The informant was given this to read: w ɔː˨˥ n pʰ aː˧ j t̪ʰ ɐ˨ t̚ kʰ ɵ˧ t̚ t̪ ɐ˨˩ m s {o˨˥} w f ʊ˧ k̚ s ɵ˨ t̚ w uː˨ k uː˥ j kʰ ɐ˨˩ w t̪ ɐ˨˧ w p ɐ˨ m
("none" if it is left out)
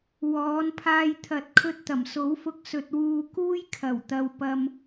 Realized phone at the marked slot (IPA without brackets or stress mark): o˨˥